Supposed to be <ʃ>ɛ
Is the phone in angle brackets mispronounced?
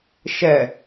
no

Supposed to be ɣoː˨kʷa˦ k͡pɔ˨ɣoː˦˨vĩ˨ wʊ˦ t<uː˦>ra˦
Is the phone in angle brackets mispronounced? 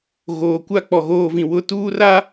no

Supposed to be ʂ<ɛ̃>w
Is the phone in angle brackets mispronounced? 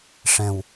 no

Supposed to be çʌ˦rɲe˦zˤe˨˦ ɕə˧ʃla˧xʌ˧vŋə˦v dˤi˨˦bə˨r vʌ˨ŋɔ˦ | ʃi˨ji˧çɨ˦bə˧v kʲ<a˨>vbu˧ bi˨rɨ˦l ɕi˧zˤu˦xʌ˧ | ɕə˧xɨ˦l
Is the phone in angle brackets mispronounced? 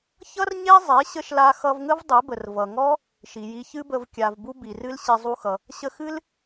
no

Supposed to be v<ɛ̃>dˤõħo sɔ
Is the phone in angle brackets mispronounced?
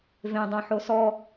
yes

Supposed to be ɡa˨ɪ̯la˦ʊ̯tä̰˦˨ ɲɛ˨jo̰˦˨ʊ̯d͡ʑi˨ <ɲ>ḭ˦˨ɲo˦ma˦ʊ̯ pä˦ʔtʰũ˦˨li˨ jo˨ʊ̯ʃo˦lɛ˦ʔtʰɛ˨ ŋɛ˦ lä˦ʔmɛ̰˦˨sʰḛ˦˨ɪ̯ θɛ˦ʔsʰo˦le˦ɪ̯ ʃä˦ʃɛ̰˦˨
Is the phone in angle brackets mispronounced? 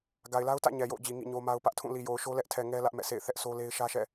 yes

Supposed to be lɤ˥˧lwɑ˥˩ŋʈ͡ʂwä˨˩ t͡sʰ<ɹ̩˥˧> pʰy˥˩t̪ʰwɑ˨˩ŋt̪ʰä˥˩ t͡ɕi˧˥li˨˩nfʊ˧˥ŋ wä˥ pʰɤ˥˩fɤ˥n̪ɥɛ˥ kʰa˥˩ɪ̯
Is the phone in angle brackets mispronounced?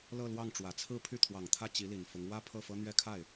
no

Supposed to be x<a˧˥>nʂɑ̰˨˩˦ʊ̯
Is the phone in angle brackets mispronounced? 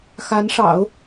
no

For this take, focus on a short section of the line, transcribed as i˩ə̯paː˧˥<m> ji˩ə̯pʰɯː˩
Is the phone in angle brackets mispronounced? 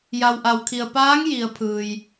yes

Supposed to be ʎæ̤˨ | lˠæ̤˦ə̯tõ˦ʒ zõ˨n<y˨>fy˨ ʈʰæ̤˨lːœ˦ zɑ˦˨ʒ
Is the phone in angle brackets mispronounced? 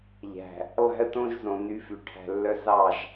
yes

